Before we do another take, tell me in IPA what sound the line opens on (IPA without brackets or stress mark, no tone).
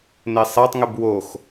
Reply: n